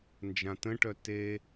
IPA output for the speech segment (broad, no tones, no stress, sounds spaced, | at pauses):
n d͡ʒ ã t ə̃ ʈ œ t e